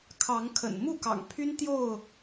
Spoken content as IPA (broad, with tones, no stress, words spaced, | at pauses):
kʰɑ˨˦ŋkʰə̰˨˩n mu˥˨kɑ̰˨˩ŋpʰy˦n t̪jo˥˨ʊ̯